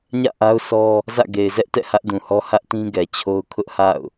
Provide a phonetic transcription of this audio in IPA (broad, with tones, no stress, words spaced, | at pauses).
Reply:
ɲä̰˦˨ʔa˦ʊ̯ sɔ˦ | zä̰˦˨ ɡe˨ɪ̯zɛ˦ʔtɛ̰˦˨ hä˦ʔdũ˨hɔ˦ hä˦ʔtĩ˦ɡɛ˨t͡ɕʰo˦ʊ̯ kʰʊ˦ʔha̰˦˨ʊ̯